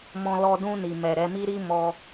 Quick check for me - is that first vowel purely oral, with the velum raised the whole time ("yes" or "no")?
no